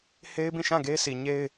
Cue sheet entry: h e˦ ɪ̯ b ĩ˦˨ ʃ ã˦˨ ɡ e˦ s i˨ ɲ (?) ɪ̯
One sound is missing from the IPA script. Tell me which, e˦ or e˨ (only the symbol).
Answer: e˦